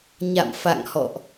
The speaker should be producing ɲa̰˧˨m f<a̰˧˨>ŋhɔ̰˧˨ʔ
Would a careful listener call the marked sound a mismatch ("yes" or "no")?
no